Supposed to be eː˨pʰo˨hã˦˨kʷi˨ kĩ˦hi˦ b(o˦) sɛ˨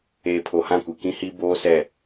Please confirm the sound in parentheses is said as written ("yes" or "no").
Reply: no